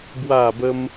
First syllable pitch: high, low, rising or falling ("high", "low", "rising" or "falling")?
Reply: falling